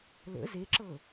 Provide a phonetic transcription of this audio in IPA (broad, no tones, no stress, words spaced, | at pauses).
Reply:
lə̰ zeǁɤ